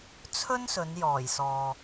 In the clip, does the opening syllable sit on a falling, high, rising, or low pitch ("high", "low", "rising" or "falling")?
high